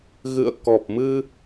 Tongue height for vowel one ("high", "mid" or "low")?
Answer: high